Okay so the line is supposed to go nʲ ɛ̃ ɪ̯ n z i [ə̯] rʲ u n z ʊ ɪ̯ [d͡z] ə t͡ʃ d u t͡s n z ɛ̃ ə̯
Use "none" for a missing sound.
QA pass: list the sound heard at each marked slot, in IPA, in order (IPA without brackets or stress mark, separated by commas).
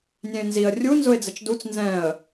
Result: ə̯, d͡z